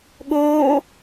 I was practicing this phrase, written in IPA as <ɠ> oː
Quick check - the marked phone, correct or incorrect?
correct